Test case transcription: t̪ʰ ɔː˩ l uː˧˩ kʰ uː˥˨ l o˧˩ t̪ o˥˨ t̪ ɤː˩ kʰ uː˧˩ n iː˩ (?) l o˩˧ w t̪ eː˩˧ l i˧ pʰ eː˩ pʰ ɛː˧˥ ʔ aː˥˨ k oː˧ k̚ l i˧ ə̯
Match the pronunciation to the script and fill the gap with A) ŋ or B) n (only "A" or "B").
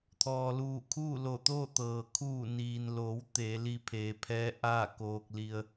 B